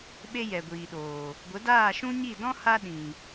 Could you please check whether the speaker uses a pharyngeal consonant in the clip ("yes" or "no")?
no